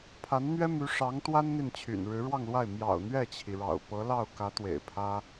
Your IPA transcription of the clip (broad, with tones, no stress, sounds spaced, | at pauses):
pʰ a˧˥ n n̪ ɥ ɛ˥ m y˧˥ ʂ ɑ˧˥ ŋ t̪ w a˥ n n̪ i˥˩ n t͡ɕʰ y̰˨˩ n ɻ ɻ̩˧˥ ɻ w ɑ˥˧ ŋ l w a˥˩ ɪ̯ m j ɑ̰˨˩ ʊ̯ n̪ ɥ ɛ˥˩ t͡ɕʰ i˩ ɻ ɑ̰˨˩ ʊ̯ p ɤ˧˥ l ɑ˥˩ ʊ̯ k ä˧˥ t̪ w ḛ˨˩ ɪ̯ pʰ ä˥